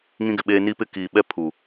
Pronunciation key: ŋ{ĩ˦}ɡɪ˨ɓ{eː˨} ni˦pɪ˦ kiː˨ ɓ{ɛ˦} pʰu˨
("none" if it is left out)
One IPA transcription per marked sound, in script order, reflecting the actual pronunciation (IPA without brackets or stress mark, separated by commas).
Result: ĩ˦, eː˦, ɛ˦